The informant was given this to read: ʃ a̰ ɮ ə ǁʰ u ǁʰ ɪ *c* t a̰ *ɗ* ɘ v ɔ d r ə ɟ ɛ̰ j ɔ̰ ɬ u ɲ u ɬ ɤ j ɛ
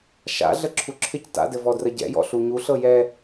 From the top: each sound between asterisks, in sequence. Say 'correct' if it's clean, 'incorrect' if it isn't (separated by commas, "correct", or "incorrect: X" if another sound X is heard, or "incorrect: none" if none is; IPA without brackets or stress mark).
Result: correct, incorrect: d